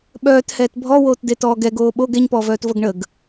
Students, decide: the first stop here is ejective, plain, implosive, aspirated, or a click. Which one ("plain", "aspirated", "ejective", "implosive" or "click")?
implosive